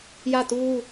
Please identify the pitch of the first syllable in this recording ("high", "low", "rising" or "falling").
falling